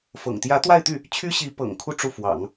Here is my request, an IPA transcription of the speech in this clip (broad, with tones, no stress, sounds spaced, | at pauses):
f ɤ̰˨˩ ŋ t̪ j ä˧˥ t̪ w a˥˧ ɪ̯ t̪ y˥˩ | t͡ɕʰ y˥ ɕ i˧˥ p ɤ̰˨˩ ŋ kʰ u˥˧ ʈ͡ʂ u˥˩ f w ɑ̰˨˩˦ ŋ